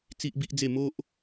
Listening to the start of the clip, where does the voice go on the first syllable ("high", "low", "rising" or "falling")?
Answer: high